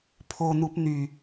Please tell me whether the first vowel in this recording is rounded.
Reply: yes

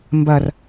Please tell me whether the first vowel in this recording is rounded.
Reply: no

